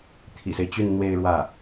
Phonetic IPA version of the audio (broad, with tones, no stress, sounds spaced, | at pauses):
t̪ʰ ḭ˨˩ s e˦ ɪ̯ t͡ɕ y˥˧ n n̪ w e˥˧ ɪ̯ ɻ w ä˥˩